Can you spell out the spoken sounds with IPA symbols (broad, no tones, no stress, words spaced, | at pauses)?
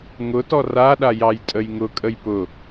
ŋʊtɔ raɗa jɑjtʼəjŋʊkʼəj pʊ